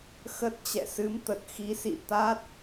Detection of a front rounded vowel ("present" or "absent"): absent